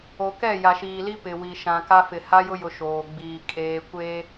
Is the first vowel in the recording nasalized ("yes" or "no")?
no